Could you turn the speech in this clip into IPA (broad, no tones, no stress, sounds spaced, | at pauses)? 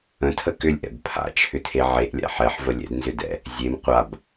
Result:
ə̃ tʰ ə k ʏ lʲ ʔ ɛ̰ b pʰ a̰ t͡ʃʰ ʏ tʰ e ʕ e ʔ lʲ a̰ ħ ɛ ħ v ə lʲ ɛ̰ d n z ʏ d ɛ̰ | zʲ e m qʷ a b